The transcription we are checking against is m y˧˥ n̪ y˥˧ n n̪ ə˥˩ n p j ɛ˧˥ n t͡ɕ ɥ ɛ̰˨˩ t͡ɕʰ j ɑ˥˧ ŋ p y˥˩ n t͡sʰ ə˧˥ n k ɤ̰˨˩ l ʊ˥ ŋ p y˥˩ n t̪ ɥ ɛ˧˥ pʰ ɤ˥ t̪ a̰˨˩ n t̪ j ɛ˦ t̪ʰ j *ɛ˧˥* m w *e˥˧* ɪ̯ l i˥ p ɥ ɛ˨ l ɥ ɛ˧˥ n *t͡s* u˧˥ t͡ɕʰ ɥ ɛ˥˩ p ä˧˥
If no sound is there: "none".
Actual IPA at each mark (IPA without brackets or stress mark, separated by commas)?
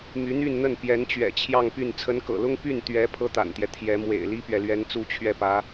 ɛ˧˥, ḛ˨˩, t͡s